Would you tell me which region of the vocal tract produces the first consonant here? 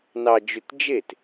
tongue tip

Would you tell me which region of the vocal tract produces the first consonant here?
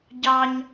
palate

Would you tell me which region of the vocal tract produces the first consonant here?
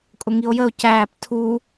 velum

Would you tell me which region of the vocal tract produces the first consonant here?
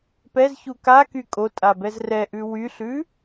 lips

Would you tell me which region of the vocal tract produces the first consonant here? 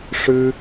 retroflex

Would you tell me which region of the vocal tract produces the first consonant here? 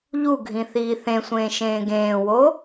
palate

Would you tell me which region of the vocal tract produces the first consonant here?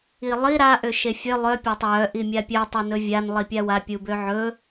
tongue tip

